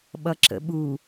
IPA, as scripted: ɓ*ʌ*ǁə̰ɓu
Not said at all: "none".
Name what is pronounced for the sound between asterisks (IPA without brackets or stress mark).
ʌ